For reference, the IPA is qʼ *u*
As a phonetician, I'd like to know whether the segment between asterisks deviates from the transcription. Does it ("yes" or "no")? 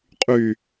yes